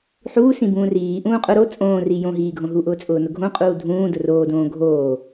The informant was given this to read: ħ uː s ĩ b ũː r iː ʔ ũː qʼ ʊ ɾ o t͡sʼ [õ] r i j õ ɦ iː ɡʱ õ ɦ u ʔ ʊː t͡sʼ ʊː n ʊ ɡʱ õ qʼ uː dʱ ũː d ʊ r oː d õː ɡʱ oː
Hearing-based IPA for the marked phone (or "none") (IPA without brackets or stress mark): õː